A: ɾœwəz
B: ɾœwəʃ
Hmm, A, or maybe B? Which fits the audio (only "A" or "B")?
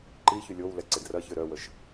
B